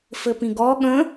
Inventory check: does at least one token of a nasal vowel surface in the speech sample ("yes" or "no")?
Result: yes